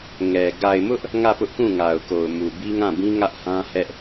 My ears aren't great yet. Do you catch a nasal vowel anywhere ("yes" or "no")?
yes